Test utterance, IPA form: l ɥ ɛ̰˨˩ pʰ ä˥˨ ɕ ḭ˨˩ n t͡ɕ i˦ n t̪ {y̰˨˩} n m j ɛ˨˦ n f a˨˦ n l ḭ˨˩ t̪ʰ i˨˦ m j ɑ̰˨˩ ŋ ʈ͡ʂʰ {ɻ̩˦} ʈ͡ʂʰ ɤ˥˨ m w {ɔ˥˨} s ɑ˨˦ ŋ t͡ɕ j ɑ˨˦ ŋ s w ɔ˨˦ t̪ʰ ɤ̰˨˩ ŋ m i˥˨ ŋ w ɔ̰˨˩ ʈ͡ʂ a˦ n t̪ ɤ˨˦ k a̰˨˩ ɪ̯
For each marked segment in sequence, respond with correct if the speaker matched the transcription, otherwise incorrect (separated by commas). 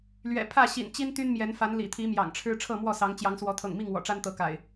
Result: incorrect, correct, correct